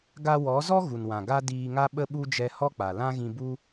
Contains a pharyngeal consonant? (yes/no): no